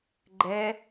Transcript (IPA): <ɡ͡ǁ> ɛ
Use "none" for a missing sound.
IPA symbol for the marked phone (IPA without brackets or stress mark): ɡ͡ǃ